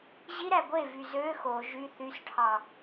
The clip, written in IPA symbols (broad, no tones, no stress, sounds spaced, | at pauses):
ʑ i ɾ æ ɡʷ e v y z ø x o ʒ y θ y s ʈʰ ɑ